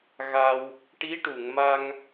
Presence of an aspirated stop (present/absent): absent